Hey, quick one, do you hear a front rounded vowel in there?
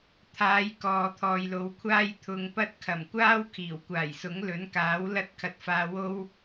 no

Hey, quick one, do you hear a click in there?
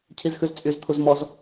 no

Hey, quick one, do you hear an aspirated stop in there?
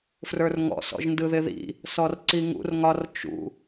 no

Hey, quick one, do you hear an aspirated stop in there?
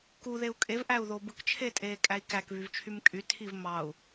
yes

